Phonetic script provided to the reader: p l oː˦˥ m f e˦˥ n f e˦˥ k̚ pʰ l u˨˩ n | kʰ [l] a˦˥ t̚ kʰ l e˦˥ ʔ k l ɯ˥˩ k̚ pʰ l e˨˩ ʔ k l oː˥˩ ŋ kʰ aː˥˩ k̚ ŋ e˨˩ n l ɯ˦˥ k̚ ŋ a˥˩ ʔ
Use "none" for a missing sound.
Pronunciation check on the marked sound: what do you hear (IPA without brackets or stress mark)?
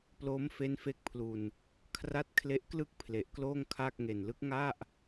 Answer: r